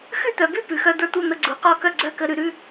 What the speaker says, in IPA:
xʉ˥˨t̪œ˩˧bʉ˥˨ pʉ˩˧˩xœ˧˥˧ d̪ə˞˥˨t̪u˥˨n̪ə˧˥˧ ɡ͡ǀu˩˧qɔ˥˨kœ˥˨ ɡ͡ǀœ˥˨kə˧˥˧ ɾʉ˩˧ɾʉ˧˥˧

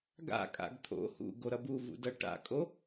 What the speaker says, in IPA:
ɡa̰kʼa̰ɡ t̪ʰo̰ hṵɡoɾʌb uvṵdʌ ʈa̰kʼo

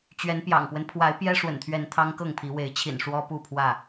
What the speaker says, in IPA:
t͡ɕɥɛ˨˦npjɑ̰˨˩ŋpwə˦n pʰwa˨˦ɪ̯pjɛ˦ʂwə̰˨˩nt̪ʰɥɛ˨˦n t̪ʰɑ˦ŋkɤ˥˨ŋpʰi˨˦ we˨˦ɪ̯t͡ɕʰḭ˨˩n ʂwɔ˦pu˥˨pʰwä˥˨

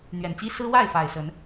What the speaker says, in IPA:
n̪ɥɛ˨˩nt͡ɕi˦ sɹ̩˦ wa˥˨ɪ̯ fa˨˩ɪ̯sə˨˦n

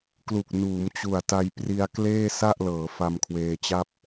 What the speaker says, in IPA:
klu˨˩k̚nuː˩˦m t͡ɕu˨˩a̯ta˧jpri˧a̯ kleː˥˩ sa˥˩ʔlɤː˩˦ fa˧mkʰweː˧t͡ɕa˥˩p̚

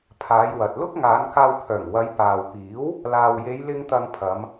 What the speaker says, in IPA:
pʰaː˨˧jwɐ˨t̚ lʊ˥k̚ŋaː˨˧nkaː˧w pʰœː˨˩ŋwɐ˨˧j paː˨wpiː˨˥w | laː˨wje˨˧jlɪ˧ŋ t̪ɐ˧ŋpʰɐ˨˧m

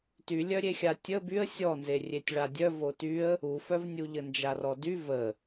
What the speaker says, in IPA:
tylʲœɾʲexʲa tʲə byə̯ sʲɔnzerʲetʲ ɭadʲœ votyə̯ | ufœvnʲu ʎənd͡ʒarɔdy və

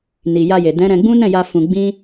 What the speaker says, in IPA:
ni˨ja˧je˨ dɛ̃˨˦ ɾɛ̃˧ɡ͡bũ˦ nɛ̃˦˨ja˧ fũ˧ ɡ͡bĩ˦

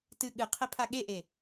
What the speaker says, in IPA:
tɨ ɠɨ qʰepʰaɠeʔe

